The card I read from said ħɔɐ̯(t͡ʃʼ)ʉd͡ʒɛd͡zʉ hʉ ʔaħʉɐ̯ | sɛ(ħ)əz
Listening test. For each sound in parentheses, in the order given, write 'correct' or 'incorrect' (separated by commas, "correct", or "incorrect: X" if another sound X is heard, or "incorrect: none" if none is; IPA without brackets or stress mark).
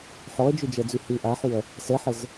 incorrect: d͡ʒ, correct